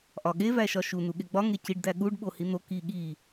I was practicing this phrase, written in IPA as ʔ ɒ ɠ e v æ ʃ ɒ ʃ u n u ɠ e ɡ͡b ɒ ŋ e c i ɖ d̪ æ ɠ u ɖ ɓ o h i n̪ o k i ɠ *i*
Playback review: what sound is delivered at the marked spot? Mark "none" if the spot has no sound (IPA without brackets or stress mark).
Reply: i